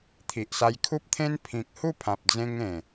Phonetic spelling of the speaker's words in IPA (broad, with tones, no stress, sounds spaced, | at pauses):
t̪ʰ i˨ ʔ s a˧ j kʰ u˦ p̚ t̪ʰ ẽ˦ n pʰ ĩ˨ k̚ h u˥˧ pʰ ã˨ p̚ d͡z ẽ˧ ŋ ẽ˨˩